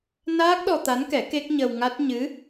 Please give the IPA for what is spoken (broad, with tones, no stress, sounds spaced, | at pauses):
n aː˦˥ k̚ ɗ ɔ˧ t̪ a˧˥ n k ɛ˨˩˦ k e˦˥ k̚ ɲ ə˧ w ŋ a˦˥ t̚ ɲ ɨ˧˥